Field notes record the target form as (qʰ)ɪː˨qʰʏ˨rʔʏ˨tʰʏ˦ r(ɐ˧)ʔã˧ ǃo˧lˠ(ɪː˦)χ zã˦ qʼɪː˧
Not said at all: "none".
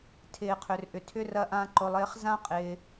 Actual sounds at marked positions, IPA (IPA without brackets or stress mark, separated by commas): tʰ, ɐ˧, ɪː˦